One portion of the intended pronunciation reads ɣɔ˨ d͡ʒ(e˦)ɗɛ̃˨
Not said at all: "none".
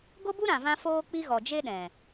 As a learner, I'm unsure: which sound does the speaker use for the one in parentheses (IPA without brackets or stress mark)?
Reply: e˦